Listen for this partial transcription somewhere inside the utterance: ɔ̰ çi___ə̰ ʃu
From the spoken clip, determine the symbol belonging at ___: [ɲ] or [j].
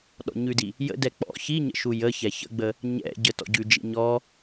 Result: ɲ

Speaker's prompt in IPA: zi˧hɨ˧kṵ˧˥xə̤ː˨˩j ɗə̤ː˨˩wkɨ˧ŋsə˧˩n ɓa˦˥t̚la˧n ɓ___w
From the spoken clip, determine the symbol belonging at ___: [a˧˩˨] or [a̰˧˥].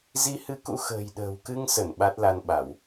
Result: a˧˩˨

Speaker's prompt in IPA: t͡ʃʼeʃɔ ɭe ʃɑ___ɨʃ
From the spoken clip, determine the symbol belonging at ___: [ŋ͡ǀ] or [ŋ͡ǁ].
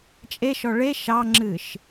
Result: ŋ͡ǁ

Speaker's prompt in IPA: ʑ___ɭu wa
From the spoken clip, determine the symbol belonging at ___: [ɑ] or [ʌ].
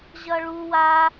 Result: ʌ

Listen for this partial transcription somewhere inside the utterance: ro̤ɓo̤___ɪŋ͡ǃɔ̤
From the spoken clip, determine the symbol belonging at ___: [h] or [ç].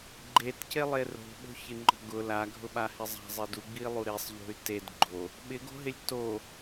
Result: ç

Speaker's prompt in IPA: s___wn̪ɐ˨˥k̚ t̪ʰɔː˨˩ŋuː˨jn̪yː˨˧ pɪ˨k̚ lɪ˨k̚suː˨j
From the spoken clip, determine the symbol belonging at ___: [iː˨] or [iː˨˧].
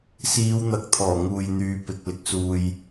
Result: iː˨˧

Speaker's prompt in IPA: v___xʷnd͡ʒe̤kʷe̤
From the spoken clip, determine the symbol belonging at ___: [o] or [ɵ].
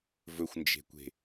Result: ɵ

